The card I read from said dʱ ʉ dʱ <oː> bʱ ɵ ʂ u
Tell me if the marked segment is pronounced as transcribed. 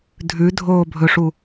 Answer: yes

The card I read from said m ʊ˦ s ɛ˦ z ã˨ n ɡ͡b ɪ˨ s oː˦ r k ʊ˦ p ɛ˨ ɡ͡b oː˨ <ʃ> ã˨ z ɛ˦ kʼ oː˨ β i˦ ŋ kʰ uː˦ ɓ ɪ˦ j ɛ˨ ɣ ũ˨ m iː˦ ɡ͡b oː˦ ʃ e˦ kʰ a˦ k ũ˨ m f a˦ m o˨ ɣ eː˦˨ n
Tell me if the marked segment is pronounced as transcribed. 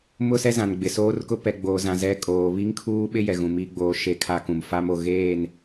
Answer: no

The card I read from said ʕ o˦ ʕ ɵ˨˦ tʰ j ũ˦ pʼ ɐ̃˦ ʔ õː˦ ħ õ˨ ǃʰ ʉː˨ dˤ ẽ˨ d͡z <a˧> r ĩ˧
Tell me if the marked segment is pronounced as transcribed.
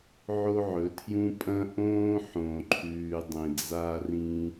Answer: yes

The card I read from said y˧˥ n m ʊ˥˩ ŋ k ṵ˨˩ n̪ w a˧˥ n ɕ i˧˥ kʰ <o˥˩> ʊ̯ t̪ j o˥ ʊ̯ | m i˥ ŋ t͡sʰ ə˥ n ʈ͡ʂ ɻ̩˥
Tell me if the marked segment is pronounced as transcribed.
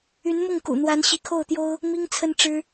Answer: yes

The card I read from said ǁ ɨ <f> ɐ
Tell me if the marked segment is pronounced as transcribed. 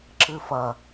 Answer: yes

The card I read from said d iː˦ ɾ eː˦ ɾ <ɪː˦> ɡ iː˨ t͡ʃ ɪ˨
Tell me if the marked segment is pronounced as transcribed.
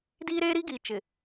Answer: no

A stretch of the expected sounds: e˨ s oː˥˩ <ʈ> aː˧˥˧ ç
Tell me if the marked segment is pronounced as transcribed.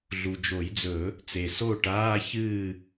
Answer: yes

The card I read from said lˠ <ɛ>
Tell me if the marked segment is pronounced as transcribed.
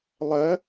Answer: no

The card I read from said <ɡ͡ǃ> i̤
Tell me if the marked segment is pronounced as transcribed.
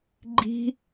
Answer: yes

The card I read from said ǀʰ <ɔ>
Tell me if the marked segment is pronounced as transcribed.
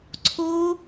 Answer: no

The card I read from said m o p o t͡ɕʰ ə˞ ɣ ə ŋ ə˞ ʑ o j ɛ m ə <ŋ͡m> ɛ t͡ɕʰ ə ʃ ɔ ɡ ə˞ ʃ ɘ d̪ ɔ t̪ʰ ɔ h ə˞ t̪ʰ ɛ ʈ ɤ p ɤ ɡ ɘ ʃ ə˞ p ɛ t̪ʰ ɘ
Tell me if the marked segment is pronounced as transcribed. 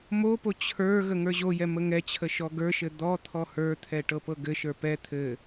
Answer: no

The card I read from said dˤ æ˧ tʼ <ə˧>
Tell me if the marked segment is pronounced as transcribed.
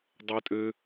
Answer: no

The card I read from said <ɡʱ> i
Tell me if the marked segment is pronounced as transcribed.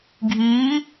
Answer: yes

